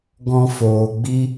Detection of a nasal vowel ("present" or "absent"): present